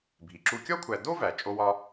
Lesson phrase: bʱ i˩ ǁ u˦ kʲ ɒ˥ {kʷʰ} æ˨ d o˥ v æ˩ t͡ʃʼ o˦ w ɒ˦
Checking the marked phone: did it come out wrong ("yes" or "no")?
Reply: no